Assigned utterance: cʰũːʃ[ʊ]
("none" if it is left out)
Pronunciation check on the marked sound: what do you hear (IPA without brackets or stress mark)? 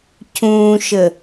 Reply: ə